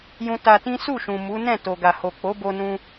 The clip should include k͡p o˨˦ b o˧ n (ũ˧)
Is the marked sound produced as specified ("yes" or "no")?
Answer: yes